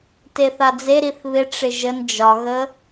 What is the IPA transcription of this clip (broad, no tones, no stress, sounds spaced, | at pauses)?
t e θ a d͡z e ɾ i θ β ɪ ʈ͡ʂ ɪ ʒ ə n d͡ʒ ɒ ɣ ə